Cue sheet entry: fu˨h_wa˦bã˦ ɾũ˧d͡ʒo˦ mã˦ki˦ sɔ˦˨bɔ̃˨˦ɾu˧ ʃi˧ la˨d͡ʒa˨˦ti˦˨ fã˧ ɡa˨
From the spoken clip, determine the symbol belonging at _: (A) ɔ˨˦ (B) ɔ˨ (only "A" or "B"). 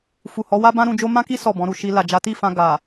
A